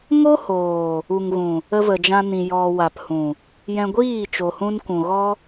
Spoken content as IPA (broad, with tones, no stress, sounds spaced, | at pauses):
ŋ o˦ h oː˨ | u˨ ŋ ɣ ũ˨ | ə˧ v ə˨ d͡ʒ ã˧ n ĩ˨ j ɔ˨ w a˨ p h ũ˨ | j ɛ̃˧ ɡʷ iː˦˨ t͡ʃ o˨ h ũ˧ n kʷ ũ˨ ɣ ɔ˦